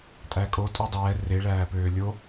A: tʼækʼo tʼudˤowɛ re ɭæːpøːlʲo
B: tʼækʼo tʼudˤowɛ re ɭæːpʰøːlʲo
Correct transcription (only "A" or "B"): A